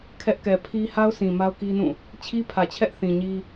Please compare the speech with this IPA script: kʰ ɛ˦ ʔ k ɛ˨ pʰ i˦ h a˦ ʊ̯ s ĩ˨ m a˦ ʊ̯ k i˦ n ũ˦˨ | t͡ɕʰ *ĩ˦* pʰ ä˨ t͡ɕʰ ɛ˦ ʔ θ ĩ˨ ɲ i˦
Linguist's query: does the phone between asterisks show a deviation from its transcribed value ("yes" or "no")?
yes